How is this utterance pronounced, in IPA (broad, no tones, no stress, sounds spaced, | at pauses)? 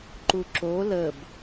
ǃ u ǁ o l ə b